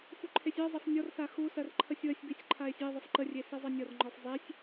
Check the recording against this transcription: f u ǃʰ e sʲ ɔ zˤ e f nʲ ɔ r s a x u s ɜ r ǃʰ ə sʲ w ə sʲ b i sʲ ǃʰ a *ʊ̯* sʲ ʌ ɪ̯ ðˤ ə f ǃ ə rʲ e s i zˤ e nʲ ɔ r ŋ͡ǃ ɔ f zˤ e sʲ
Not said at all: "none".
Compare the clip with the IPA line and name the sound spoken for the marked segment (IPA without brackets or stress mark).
ɪ̯